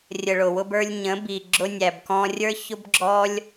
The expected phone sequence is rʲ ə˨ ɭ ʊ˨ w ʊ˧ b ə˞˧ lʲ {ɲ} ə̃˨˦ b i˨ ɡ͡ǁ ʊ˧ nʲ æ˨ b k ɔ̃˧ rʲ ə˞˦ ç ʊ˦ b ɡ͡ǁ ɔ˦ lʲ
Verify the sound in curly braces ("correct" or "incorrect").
correct